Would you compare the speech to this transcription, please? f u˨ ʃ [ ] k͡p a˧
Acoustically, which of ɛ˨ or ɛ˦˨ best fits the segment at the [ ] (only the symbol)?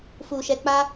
ɛ˨